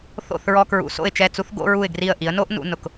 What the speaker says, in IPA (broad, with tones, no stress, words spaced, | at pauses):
θo̰˥˩θɹɔ˧ kɹṵ˩˥so̰˥˩ɪ̯t͡ʃɛ˥˩t͡su˥θ ɡo̰˥ɹu˥˩ɪ̯ɡri˥˩ə̯ ʔi˩˥ə̯no˥ʔ nṵ˩˥nʊ˩k